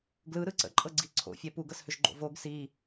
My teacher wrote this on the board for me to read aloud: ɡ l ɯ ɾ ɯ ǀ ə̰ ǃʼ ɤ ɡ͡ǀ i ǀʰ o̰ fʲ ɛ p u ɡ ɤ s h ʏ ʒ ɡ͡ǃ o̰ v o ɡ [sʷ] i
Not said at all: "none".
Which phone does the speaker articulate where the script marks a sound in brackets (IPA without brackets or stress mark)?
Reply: s